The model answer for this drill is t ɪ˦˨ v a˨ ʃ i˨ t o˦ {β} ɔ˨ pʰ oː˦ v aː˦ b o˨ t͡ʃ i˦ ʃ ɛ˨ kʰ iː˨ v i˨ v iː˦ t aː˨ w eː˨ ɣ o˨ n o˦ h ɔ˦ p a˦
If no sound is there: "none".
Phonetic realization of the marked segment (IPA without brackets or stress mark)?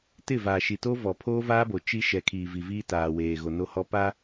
v